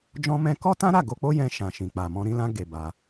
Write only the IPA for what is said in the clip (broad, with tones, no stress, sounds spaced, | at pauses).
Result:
d͡ʒ ɔ̃˧ m ɛ̃˧ k ɔ˦ t ã˦ ɾ a˦˨ ɡ o˧ k͡p o˦ j ɛ̃˧ ʃ ã˨ ʃ ĩ˨ k͡p a˨ m ɔ̃˧ ɾ ĩ˧ l ã˧ ɡ e˨ b a˧